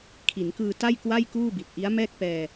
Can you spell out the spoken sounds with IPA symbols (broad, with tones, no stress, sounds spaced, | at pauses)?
kʰ i˩˦ n k ɯː˧ t a˥˩ j k w a˥˩ j k uː˥˩ b i˨˩ t̚ ʔ i˦˥ a̯ m ɛː˥˩ k̚ p ɛː˧